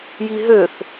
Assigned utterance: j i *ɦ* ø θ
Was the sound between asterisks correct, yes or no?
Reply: yes